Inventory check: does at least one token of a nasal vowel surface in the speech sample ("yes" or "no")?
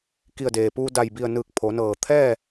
no